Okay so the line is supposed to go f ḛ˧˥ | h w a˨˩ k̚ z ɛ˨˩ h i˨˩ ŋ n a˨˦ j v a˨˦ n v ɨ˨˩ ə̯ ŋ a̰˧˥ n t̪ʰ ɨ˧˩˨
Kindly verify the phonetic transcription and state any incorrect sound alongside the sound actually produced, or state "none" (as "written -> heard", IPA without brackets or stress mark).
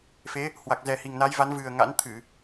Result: ḛ˧˥ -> e˨˦